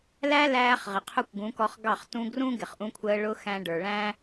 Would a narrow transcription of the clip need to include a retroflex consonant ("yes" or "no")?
yes